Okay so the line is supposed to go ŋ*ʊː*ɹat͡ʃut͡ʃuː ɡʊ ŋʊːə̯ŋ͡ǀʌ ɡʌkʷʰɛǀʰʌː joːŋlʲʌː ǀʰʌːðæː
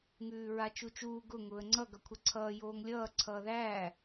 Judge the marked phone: incorrect: ʉː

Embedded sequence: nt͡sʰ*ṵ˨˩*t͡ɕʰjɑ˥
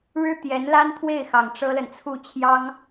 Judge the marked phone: incorrect: u˥˩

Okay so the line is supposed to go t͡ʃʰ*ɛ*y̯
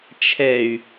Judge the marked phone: correct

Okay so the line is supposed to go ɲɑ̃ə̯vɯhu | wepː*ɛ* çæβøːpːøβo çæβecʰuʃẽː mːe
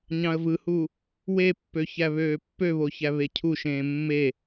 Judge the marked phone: incorrect: ø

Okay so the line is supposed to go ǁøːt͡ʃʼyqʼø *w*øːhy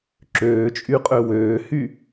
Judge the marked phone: correct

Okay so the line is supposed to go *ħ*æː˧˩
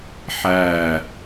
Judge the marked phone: correct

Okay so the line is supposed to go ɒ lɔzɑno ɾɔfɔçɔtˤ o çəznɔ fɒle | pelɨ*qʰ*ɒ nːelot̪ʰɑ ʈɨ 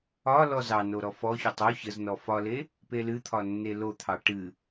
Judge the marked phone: incorrect: t̪ʰ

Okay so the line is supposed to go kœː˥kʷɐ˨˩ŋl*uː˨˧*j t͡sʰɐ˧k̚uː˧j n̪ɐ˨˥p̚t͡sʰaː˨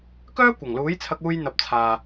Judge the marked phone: incorrect: uː˨˥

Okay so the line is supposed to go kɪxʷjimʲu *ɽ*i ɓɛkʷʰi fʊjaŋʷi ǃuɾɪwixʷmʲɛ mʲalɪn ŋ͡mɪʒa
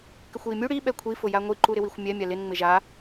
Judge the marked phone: correct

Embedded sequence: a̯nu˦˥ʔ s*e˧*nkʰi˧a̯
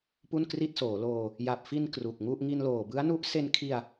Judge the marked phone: correct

